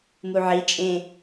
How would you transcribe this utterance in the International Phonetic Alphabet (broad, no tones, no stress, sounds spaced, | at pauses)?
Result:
m u ʕ i t͡ʃʼ ẽ